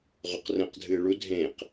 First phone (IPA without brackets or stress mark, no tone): ʁ